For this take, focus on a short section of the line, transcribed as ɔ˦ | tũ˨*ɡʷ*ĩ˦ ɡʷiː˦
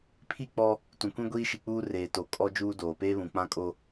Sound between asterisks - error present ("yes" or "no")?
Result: yes